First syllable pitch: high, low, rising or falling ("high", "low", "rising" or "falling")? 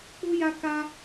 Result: high